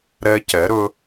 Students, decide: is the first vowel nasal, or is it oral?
oral